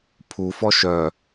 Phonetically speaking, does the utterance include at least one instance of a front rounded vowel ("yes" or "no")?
yes